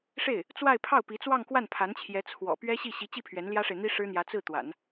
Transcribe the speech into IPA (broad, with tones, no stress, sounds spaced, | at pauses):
ʂ e˥˩ ɪ̯ | t͡s w a˥˧ ɪ̯ pʰ ɑ˥˩ ʊ̯ p i˧˥ t͡s w ɑ˥˧ ŋ k w a˥˩ n pʰ a˧˥ n t͡ɕʰ j ɛ˧˥ t͡sʰ w ɔ̰˨˩ p ɥ ɛ˥ ɕ i˥˩ ɕ i˧˥ t͡ɕ i˥˩ pʰ ɥ ɛ˧˥ n l j ä˥ ʂ e˨ ɪ̯ n̪ i˥ ʂ ɻ̩˥ n̪ j ä˧˥ t͡s ɹ̩˥˩ t̪ w a̰˨˩˦ n